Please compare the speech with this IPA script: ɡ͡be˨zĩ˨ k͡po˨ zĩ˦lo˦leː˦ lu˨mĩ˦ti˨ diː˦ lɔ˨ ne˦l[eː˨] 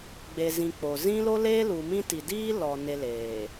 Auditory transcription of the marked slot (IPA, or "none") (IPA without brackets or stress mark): eː˨